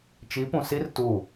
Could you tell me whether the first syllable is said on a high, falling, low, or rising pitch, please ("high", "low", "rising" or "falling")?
rising